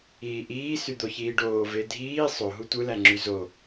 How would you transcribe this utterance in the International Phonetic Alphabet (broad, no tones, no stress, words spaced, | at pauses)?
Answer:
iːʔiː syd̪oçiːɖoː vedʱiː sˤo ɦutʷɯlæŋ͡ǁy zo